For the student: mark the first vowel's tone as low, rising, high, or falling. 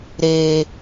low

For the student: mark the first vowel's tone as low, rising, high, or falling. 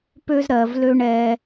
high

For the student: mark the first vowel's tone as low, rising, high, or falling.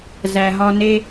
low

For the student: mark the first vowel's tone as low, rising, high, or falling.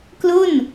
falling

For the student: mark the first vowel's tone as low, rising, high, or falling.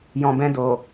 low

